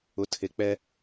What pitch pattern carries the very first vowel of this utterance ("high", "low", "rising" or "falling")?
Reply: rising